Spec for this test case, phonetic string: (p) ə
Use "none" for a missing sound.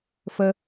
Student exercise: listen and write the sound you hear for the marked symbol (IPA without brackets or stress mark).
f